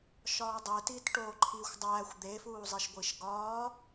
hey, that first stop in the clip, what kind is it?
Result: plain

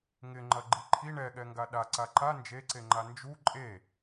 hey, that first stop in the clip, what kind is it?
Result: click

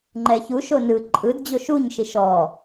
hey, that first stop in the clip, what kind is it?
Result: click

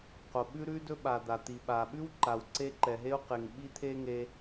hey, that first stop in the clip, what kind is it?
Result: plain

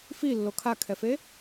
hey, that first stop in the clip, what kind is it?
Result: aspirated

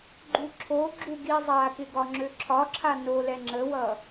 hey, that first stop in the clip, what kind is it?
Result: click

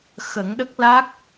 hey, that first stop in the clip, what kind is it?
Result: implosive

